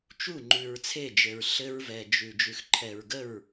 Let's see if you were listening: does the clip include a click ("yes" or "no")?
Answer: yes